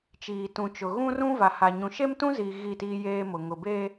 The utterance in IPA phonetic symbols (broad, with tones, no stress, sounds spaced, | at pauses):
t͡ʃ iː˨ t ũ˨ t͡ʃ ʊ˨ ɣ ũ˦ r ũ˦ v a˨ h a˨ ɲ ũ˨ ʃ e˦ m t ũ˦ z iː˨ ɣ i˦˨ t iː˦ j eː˦ m ʊ˨ ŋ ʊ˨ b e˦